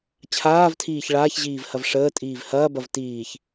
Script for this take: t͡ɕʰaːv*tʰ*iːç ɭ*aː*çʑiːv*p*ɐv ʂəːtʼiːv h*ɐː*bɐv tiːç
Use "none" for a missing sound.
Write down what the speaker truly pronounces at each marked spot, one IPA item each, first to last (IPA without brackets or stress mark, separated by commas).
tʰ, aː, h, ɐː